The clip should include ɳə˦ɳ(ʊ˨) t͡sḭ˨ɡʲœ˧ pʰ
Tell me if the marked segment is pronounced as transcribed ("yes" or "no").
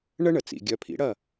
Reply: no